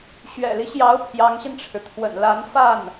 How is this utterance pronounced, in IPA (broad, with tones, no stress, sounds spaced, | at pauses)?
ɕ ɥ ɛ̰˨˩ l i˦ ɕ j ɑ˧˥ ʊ̯ pʰ j ɑ˧˥ ŋ ɕ i˧ n ʈ͡ʂʰ ɻ̩˩ t̪ʰ w ə̰˨˩ n l a˧˥ n f a˥˩ n